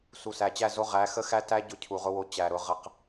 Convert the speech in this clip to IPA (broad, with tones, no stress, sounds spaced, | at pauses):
s u˨ s æ˨ t͡ɕ æ˦˨ z o˦ ʁ æ˨˦ x ə˦ x æ˦ t æ˦ ɟ ʊ˦ cʰ u˨ ʁ ʊ˦ w o˦ t͡ɕ æ˨ ɾ ʊ˨˦ ʁ ə˦ q